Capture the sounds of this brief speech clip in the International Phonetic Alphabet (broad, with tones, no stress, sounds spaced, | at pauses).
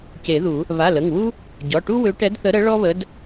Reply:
c e˨˩˦ ð u˨˩˦ | β a˩˧˩ l ə˩˧˩ ŋ w u˥ | ɟ ɔ˩˧˩ ʈ u˥ w ø˧˥ ʈ ɛ˧˥ d θ ə˧˥ ɾ ə˧˥ ɭ ɔ˥ β ə˧˥ d